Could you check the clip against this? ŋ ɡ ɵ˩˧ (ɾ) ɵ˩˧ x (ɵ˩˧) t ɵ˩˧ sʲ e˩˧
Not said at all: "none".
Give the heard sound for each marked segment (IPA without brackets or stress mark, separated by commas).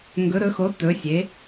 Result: ɾ, o˩˧